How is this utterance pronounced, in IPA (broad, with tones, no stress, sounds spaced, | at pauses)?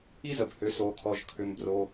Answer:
i˥ z ə˩ b h ʏ˩ s o˩ kʰ ɔ˩ ʒ kʰ ʏ˩ m b r o˩